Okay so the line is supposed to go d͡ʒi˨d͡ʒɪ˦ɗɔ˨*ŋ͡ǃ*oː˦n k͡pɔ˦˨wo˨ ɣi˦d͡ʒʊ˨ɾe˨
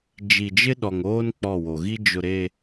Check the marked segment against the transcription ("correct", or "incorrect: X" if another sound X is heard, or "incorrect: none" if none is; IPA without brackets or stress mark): incorrect: ŋ